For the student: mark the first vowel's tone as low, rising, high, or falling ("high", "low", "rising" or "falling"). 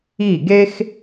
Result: falling